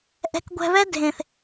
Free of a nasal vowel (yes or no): no